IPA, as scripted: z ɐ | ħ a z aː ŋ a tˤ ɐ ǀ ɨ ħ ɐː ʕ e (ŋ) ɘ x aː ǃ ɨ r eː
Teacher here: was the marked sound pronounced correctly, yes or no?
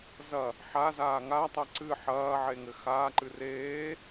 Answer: yes